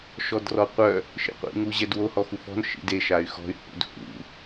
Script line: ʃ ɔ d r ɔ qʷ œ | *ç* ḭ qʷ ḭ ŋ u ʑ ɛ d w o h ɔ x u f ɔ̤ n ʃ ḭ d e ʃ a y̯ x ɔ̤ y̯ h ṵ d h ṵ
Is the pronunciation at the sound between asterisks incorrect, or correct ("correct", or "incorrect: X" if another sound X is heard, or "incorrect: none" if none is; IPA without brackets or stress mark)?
incorrect: ʃ